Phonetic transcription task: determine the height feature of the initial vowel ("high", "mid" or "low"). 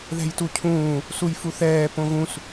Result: mid